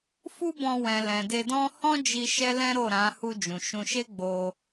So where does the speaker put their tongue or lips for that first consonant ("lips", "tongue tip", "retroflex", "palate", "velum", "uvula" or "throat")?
lips